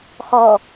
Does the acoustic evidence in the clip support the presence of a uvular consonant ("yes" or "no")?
yes